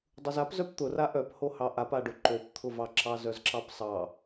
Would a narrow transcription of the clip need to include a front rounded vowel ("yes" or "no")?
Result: yes